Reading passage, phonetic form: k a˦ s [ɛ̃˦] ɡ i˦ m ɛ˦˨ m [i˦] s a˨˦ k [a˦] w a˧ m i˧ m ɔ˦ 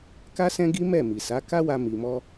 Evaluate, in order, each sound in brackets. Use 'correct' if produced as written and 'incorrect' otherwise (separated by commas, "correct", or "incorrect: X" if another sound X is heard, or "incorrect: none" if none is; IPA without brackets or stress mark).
correct, incorrect: i˨, correct